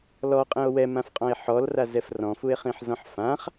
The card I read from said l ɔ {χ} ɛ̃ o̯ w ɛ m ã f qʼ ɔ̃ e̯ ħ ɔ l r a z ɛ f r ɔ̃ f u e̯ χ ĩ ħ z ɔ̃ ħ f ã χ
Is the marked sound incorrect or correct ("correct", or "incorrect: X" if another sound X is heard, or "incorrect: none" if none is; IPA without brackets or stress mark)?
incorrect: qʼ